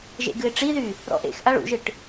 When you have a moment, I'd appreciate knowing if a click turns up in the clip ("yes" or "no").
no